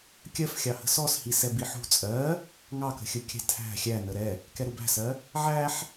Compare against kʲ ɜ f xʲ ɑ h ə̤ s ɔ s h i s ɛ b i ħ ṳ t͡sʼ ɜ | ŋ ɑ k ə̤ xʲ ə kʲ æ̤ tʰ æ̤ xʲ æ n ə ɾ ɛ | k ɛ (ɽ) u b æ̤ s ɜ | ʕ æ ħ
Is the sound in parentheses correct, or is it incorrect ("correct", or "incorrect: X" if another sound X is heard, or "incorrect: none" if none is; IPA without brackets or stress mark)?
incorrect: ɾ